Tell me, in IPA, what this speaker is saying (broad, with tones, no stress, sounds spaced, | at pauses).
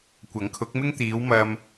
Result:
kʷ ɐ˨˥ ŋ kʰ ʊ˨˥ k̚ m ɪ˥ ŋ t̪ iː˨˧ w m ɐ˧ m